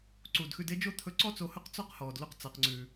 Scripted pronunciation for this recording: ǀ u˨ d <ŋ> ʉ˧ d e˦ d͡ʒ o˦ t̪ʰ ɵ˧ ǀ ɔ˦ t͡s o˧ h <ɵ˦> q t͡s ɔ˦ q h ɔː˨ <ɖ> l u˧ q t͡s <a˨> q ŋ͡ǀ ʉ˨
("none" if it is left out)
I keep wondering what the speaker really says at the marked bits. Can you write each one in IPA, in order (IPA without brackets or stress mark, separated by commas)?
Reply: x, ɵ˦, d, a˨